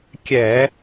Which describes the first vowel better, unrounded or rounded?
unrounded